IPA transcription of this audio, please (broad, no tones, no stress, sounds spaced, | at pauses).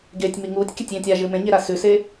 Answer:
ɡ e tʲ m i ŋ uː tʲ kʲ ɐ tʲ j ẽ tʲ a ʒ ɨ m ẽ ɲ e ɾ a s ʉ s e